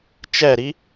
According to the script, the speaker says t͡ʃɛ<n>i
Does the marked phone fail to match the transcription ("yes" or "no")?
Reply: yes